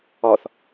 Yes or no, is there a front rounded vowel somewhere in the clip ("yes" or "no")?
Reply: no